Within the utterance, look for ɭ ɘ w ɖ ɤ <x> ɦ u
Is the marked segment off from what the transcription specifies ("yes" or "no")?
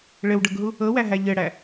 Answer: yes